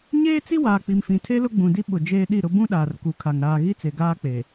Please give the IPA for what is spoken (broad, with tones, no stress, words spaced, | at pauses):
ɲeː˦t͡si˦waː˨ k͡pi˨mfĩ˨ tʰe˦lʊ˦ɡ͡bũ˨di˦ ɓʊ˨ d͡ʒeː˦ɗi˦˨ɾʊ˦ bũ˦ɗaː˨rku˨kʰa˨ŋ ɾaː˨ɣi˦t͡se˨ ɡaː˦ k͡pe˨